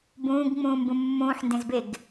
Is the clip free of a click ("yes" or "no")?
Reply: yes